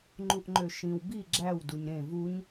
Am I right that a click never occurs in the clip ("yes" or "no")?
no